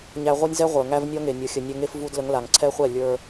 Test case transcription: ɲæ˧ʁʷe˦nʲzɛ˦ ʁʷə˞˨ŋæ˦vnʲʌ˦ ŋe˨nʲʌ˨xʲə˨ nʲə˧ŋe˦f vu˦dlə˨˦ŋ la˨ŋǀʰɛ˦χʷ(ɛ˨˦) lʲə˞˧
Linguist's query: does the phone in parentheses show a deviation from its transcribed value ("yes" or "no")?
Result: yes